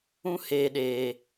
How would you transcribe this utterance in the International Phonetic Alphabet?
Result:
ũ˦ h eː˨ ɗ eː˨

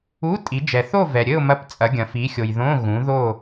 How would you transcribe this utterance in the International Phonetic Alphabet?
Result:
u˧˥˧ tʼ i˨˦ d͡ʒ ɛ˨ θ o˥˧ v ɛ˨ ɾʲ ɘ˥˧ ʊ̯ m ɐ˧˥˧ p t͡sʼ ɐ˨˦ ɡʲ ɐ̃˨ f i˨˦ xʲ o˨ j ð õ˧˥˧ ɣ ũ˨˦ ð o˥˧

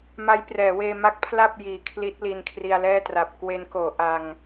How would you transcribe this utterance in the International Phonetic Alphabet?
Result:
m a˦˥ j p r ɛː˩˦ w eː˧ m a˦˥ k̚ pʰ l a˥˩ p̚ j iː˨˩ kʰ l i˦˥ t̚ l i˧ n kʰ r i˧ a̯ l ɛː˥˩ t r a˨˩ p̚ k w e˦˥ n k oː˩˦ ʔ a˧ ŋ

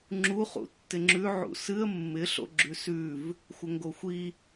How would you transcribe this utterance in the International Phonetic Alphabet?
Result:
ŋ͡ǁ u χ ṵ tː ɪ ŋ͡ǁ ʉ ʕ ṵ s ɨ ə̯ mː ɪ ɬ o̰ ɡ͡ǁ ʉ s ʉ v | xʷ ə ŋ ɡ o xʷ i

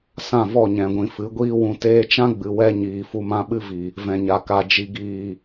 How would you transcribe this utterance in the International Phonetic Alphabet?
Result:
s ã˦˨ v ɔ˦˨ ɲ ɛ̃˨ ɡʷ ĩ˨ f ɨ˨˦ ɡʷ iː˦ w ũ˧ t eː˧ t͡ʃ ã˦ ɡ͡b ɨ˨ w ɛ˧ ɲ iː˨ f u˧ m ã˦ ɓ ɨ˦ v i˨ | v ɛ̃˨ ɲ a˨ k a˨ d͡ʒ i˨ ɡ iː˨

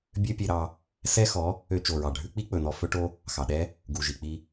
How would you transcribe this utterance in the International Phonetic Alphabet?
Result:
bʲ ø˦ pʲ e˧ ɾ ɑ˧ | s ɛ˦ x ɔ˨˦ | ø˧ t͡ʃ o˨ ɹ ɑ˨ ɖʱ ʉ˦ k͡p i˦ k͡p ɵ˨ n ɔ˧ f ɵ˦ ʈ o˦ | x ɑ˨ ɗ ɛ˦ | ɡ u˨ ʒ i˨ k͡p i˧

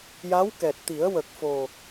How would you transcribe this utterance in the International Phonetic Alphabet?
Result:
j a˧˥ w k ɛ˨˩ t̚ t̪ i˨˩˦ ə̯ w ə˨˩ k̚ f o˨˩

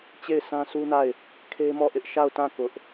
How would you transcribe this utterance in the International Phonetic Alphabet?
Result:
t͡ɕ e˦˨ ɪ̯ s ã˦ s u˦ n a˦˨ ɪ̯ | kʰ e˦ m ɔ˦˨ ʔ ɪ˦ ʔ ʃ a˦˨ ʊ̯ t ã˦˨ k ʊ˦ ʔ

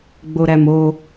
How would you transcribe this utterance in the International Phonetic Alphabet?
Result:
ɡ͡b o ɾ æ m o

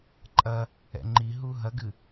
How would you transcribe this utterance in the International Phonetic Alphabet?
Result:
ǃʼ ɐ | ɛ̰ ŋ͡ǃ i ɦ u ɦ ɐ ɡ ɨ

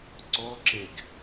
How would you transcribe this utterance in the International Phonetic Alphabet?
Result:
ǀ ɔ ǁ e ɡ

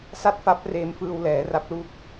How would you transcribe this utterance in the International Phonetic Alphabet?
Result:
s a˥˩ t̚ f a˦˥ p̚ r eː˧ m f ɯː˧ w l ɛː˩˦ r a˦˥ p̚ l uː˦˥ k̚

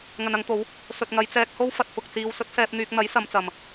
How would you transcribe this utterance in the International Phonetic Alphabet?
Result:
ŋ ɐ˨ n ɐ˨˧ ŋ t̪ o˨˧ w | s ɵ˨ t̚ ŋ ɐ˨˧ j t͡s ɛː˧ k̚ h o˥ w f ɐ˧ t̚ f ʊ˨ k̚ t͡s iː˧ w s ɵ˨˥ t̚ s ɛː˧ p̚ n̪ yː˧ k̚ n̪ ɐ˨˥ j s ɐ˨˧ m t͡s ɐ˨ m

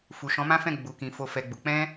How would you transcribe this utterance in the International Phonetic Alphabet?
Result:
f u˨ ʃ ɔ̃˨˦ m ã˦ f ɛ̃˦˨ ɡ͡b u˨ k ĩ˨ f o˧ f ɛ˧ ɡ͡b u˨ k͡p ɛ̃˧

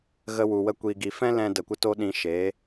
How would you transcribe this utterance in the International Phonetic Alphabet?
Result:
ɣ ə˧ w u˨ w ə˧ kʷ i˨ ɡ i˨ f ɛ̃˦ l ɛ̃˦ d ə˧ kʷ ə˦ t o˦ ɗ ĩ˧ ʃ eː˨˦

